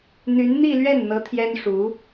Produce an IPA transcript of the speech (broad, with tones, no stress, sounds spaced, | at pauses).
n̪ y˧˥ n n̪ i˥˧ l ɥ ɛ˥˩ n n̪ ɤ˧˥ t̪ʰ j ɛ˥ n ʂ u˧˥